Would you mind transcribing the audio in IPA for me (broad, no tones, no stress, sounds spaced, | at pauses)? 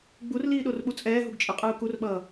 ɡ͡b u r l iː ɗ o r ɓ u t͡sʼ ɛː ɦ u ɡ t͡ʃʼ ɯ qʼ ɯː k u r ɓ ʌː